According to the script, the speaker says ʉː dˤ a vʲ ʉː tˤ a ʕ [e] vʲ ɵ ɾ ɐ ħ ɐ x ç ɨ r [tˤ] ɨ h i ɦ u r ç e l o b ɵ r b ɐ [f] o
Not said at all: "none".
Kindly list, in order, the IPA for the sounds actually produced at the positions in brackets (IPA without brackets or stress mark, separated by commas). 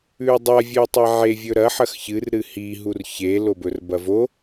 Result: e, ɾ, v